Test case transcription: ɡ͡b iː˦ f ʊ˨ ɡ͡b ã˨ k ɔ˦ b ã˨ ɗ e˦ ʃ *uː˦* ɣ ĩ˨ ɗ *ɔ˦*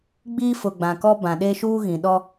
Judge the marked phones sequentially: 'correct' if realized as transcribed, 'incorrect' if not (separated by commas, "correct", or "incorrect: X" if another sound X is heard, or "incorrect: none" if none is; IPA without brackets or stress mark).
correct, correct